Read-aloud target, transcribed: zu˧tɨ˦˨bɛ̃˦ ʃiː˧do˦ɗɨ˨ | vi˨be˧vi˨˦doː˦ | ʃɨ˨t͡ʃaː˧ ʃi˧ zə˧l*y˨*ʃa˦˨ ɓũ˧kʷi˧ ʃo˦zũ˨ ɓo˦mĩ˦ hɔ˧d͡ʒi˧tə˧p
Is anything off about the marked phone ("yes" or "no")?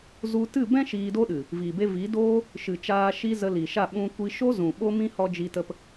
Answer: yes